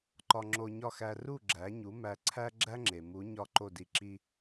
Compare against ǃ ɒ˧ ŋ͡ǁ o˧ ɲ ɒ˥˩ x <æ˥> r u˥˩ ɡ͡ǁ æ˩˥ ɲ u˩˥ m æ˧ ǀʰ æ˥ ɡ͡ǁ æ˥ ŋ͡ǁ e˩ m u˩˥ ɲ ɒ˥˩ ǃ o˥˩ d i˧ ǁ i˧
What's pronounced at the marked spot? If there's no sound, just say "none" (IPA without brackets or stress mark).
æ˧